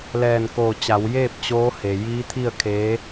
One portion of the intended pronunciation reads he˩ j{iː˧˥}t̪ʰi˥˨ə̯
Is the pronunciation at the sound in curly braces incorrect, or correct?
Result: correct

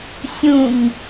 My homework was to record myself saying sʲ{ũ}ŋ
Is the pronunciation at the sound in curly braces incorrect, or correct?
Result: correct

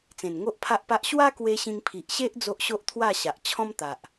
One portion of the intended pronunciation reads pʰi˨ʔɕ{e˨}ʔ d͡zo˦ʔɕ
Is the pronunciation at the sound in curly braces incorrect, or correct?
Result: incorrect: e˦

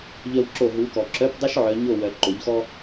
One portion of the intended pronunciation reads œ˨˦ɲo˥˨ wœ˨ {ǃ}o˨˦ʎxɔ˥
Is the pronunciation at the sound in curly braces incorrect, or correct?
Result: correct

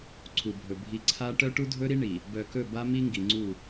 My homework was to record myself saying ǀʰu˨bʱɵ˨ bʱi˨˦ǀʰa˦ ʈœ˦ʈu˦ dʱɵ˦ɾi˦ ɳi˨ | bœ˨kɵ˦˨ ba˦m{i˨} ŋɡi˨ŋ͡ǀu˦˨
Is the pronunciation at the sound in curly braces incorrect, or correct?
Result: incorrect: i˦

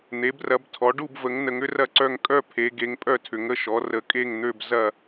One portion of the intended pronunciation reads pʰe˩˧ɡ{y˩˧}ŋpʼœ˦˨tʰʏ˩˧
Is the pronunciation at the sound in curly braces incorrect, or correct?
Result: incorrect: e˩˧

